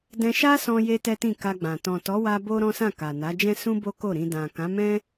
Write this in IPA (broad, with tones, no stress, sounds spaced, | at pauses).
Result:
d ɛ̃˧ ʃ a˦ s ɔ̃˧ j e˧ t ɛ˦ t ĩ˦˨ k a˧ ɡ͡b ã˨ t ɔ̃˨ t ɔ˨˦ w a˧ b o˦ ɾ ɔ̃˦ s ã˦˨ k a˨ n a˨˦ d͡ʒ ɛ̃˦ s ũ˦ b o˦ k o˦˨ ɾ ĩ˧ d ã˨ k ã˨˦ m ɛ̃˦